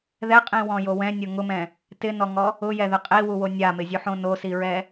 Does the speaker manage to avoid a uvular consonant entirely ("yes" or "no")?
no